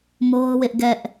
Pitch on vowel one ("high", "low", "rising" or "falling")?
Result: high